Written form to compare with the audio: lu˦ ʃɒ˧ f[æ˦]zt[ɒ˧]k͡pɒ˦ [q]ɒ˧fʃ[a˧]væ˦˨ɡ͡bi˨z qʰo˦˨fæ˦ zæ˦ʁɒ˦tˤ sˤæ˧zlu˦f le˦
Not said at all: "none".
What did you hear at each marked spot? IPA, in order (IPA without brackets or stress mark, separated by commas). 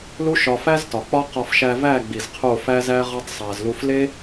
æ˦, ɒ˨, q, æ˧